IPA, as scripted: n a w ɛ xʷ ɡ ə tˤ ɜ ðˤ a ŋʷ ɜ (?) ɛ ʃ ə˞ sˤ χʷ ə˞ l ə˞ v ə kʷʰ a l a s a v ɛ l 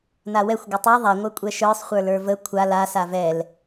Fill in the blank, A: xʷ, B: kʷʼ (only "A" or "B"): B